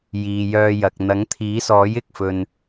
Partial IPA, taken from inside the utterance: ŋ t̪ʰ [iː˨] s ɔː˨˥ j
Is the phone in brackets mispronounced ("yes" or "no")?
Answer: yes